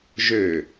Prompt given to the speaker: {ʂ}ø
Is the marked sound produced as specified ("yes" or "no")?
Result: no